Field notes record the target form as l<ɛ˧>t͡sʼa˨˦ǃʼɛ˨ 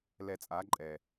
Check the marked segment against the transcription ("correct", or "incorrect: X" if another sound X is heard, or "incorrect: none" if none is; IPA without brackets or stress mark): correct